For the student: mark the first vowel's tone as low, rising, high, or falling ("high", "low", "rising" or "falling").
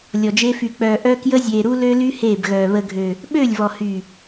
low